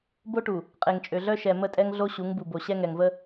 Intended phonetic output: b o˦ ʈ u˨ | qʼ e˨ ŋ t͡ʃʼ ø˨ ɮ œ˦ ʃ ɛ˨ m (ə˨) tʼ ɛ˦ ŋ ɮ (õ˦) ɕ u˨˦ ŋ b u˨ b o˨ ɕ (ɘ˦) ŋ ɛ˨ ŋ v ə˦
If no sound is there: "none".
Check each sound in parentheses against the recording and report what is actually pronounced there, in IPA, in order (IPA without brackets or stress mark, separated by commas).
ə˦˨, o˦, ɛ˦